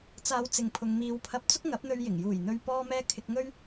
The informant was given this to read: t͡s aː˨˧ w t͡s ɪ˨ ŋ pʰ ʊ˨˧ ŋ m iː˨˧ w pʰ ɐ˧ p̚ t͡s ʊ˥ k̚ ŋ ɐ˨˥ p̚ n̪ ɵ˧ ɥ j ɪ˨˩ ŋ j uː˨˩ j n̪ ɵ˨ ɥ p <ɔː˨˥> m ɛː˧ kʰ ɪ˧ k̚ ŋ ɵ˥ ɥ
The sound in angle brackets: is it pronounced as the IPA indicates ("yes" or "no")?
no